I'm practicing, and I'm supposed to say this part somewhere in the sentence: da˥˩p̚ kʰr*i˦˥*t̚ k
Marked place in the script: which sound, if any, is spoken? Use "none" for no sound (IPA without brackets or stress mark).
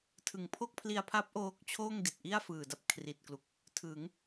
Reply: i˨˩